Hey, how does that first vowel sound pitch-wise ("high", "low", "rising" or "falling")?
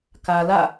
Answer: low